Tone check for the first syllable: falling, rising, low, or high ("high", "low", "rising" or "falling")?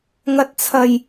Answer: low